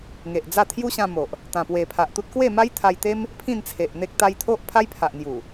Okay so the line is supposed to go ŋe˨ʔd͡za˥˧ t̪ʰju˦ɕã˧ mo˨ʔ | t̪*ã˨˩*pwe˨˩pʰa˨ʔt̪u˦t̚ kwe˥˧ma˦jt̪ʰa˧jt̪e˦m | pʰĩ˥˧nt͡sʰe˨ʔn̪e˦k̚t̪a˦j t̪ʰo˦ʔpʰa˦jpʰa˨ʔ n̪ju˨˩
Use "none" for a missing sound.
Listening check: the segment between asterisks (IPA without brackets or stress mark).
ã˨˩